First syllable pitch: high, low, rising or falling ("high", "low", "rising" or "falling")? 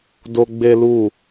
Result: high